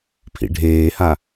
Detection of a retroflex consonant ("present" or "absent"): present